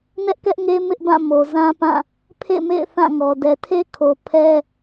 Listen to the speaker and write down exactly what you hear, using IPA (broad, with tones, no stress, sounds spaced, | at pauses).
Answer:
n ɛ˦ ʔ k ɛ˦ ʔ ŋ e˦ m ɪ˦ ʔ b ã˦˨ m o˨ z ã˦ p ã˦˨ | pʰ ḛ˦˨ m ḛ˦˨ ɪ̯ θ ã˦˨ ŋ ɔ˨ d ɛ˨ tʰ e˦ kʰ o˨ pʰ ɛ˦